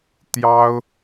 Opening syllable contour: high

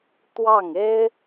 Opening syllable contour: falling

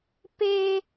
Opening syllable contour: high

